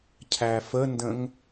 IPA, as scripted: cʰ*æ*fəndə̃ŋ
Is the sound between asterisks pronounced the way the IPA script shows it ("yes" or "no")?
yes